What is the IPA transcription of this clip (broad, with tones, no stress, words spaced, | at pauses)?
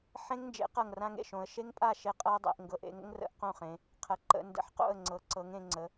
ħẽ˦˥ŋnd͡ʒḛ˩˥ qɤ˥˩ŋrã˦˥ŋḛ˥˩ ʃõ˩˧ə̯ ʃe˦˥ŋpʼa˥˩ ʃe˥˩qʼɤ˦˥ə̯dˤḛ˩˧ʔŋɡɤ˩˥ʔ ḛ˩˥ŋə̰˦˥ŋrə̰˩˥ʔ qõ˥˩χẽ˩˧ | qʰə˩˧ ǃə̰˩˧ndə̰˨˩ħqo̰˥˩ə̯ ŋ͡ǀɤ˨˩ǀɤ˩˥ŋẽ˩˧ ŋ͡ǀə˩˥